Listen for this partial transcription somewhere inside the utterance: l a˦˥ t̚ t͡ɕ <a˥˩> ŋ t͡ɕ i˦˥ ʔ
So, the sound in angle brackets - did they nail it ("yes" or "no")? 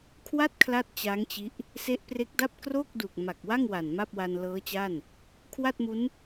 no